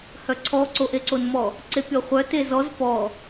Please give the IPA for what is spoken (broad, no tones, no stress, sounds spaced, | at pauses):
h œ ǀʰ ɔ ǀ o ʔ e ǀ o n m ɔ | ǀ e pʲ ɔ χʷ œ t e z ɔ z p ɔ